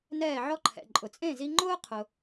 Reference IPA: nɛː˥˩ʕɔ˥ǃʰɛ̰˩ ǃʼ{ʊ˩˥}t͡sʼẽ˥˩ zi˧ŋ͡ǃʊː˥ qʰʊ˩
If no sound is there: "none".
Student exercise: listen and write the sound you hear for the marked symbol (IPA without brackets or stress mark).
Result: ʊ˩